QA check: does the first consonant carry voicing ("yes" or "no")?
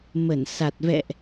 yes